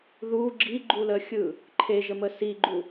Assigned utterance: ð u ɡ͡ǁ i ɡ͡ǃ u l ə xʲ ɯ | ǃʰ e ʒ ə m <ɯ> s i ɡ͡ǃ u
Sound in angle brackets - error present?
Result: yes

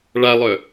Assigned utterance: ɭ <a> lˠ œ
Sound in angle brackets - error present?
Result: no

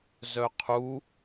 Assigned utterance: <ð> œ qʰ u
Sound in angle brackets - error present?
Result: yes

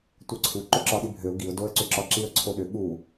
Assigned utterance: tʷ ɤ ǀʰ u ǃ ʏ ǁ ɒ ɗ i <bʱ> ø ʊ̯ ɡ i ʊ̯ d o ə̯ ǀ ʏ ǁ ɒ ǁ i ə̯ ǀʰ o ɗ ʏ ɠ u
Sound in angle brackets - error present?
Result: no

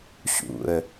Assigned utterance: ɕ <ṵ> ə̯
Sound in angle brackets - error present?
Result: no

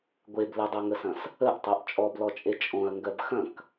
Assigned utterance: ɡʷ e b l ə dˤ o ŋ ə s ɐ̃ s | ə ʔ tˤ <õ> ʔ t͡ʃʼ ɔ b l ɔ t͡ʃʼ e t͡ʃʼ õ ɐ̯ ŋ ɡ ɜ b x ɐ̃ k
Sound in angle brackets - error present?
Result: yes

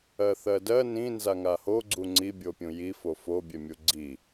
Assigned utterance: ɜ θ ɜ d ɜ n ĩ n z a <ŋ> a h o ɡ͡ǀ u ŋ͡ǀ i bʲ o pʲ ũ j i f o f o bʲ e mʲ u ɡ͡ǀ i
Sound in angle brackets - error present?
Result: no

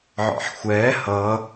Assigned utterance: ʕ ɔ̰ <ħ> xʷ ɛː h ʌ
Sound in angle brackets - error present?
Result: no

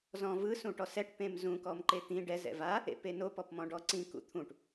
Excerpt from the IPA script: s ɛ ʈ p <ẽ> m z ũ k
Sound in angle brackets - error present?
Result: no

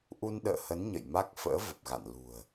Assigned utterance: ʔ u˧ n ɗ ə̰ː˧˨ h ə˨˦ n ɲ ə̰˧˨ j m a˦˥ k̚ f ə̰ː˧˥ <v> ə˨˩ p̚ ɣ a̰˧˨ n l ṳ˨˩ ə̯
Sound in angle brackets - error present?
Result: no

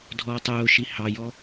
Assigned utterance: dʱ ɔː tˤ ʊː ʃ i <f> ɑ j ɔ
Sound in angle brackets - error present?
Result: yes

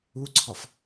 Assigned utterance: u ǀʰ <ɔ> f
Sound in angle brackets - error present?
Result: no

